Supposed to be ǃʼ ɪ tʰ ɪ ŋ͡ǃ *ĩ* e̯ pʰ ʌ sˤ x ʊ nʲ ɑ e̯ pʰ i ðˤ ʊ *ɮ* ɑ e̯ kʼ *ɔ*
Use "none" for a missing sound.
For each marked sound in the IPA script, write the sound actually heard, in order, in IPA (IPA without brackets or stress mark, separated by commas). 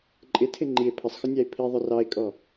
i, r, ɔ